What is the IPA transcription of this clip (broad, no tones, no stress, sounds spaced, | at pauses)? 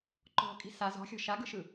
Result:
ǃ ɔ̤ kʼ i̤ s a z ɔ̤ xʲ ɔ̤ ʃ a ɡ ɯ ʃ ɯ